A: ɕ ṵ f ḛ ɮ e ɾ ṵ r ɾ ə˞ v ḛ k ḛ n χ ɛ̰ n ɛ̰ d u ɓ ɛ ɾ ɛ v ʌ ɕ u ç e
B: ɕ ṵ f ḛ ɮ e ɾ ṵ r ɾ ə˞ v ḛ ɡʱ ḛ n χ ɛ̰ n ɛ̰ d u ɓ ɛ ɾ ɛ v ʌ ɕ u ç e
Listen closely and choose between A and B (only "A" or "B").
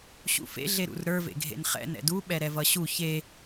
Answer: B